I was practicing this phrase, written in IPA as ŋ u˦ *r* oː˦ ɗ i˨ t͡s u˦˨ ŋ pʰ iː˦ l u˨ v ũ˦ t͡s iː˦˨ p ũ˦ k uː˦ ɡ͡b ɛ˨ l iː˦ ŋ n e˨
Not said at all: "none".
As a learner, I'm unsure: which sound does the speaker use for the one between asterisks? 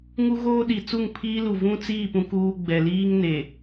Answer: ɣ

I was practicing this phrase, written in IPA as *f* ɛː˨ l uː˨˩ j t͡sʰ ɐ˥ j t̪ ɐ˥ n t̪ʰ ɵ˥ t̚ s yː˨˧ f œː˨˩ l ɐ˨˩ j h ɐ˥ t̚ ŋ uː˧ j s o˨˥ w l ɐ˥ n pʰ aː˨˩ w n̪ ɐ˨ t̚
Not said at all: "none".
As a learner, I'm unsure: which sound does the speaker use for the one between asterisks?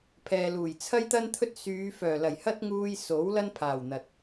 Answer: pʰ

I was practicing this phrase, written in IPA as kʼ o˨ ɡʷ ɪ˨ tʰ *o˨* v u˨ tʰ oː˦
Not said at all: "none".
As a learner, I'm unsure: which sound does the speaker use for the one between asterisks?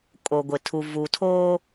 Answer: u˨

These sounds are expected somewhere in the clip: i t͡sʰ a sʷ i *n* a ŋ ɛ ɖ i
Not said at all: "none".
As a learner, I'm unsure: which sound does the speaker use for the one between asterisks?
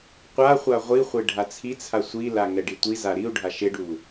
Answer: l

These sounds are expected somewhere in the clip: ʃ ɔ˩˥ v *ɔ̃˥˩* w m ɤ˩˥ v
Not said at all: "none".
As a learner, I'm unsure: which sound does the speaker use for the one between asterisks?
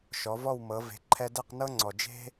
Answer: ɔ˥˩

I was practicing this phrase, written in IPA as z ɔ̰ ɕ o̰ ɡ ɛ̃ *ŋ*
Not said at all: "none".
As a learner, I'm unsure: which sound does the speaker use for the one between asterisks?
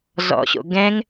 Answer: ŋ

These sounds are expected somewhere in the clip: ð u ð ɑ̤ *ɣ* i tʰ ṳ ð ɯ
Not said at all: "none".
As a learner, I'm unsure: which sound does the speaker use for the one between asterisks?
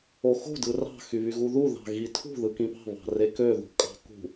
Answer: ɣ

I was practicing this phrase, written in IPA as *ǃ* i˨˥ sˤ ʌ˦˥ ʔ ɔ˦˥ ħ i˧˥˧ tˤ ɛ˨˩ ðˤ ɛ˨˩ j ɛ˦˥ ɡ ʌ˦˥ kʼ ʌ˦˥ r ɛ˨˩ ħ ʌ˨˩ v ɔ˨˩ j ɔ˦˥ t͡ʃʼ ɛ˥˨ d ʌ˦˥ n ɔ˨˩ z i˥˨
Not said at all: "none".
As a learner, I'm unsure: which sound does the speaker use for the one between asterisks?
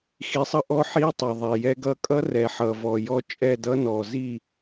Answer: x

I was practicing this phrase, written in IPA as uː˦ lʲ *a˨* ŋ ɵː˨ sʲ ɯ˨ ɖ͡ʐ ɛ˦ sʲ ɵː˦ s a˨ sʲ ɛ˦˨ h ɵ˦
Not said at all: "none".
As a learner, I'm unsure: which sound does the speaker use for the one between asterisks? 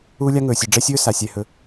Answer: a˦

